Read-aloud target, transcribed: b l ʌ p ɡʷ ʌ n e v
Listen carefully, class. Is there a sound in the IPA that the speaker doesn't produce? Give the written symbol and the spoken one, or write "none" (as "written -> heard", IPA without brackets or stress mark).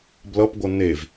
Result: none